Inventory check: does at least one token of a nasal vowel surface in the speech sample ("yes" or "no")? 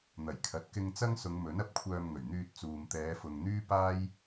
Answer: no